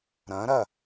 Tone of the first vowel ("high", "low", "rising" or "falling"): rising